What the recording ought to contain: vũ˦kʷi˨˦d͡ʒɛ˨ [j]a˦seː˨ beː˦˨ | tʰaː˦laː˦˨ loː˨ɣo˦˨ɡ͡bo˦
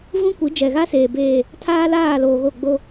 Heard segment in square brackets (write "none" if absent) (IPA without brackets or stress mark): ɣ